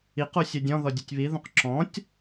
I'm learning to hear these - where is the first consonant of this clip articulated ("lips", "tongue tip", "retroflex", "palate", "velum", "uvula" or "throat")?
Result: uvula